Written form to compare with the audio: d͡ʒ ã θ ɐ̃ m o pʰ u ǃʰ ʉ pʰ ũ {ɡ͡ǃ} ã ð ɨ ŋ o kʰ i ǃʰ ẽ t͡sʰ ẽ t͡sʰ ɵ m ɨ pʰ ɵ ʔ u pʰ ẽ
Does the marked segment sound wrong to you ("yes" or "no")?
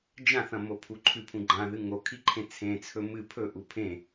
no